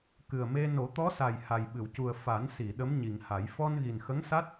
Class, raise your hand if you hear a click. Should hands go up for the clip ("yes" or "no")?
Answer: no